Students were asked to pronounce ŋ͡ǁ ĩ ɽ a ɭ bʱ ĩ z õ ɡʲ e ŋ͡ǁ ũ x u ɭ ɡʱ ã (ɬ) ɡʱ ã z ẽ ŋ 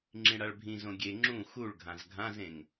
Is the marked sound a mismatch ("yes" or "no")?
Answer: yes